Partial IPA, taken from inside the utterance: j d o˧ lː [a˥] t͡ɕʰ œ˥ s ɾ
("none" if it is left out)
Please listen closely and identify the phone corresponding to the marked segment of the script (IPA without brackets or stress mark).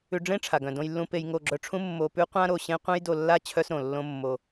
a˥